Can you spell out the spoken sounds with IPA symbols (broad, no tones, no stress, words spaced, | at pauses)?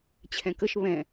t͡ɕʰɛ̃kəʃ βɛ̃